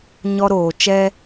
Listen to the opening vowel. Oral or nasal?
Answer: oral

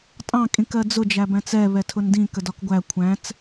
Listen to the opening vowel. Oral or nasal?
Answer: nasal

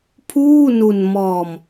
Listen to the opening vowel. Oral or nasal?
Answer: oral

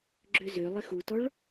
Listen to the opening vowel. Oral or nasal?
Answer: oral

